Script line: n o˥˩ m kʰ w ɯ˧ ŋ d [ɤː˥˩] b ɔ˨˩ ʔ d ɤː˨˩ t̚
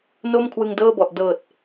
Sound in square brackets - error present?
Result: no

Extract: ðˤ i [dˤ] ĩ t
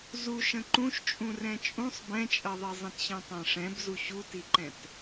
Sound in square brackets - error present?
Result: yes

